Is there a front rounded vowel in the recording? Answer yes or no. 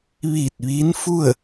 no